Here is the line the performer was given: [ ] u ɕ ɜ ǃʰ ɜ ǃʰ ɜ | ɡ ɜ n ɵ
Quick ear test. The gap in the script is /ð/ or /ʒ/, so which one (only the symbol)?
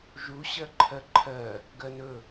ʒ